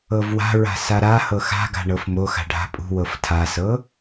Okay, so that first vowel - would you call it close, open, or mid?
mid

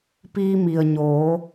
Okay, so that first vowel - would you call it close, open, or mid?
close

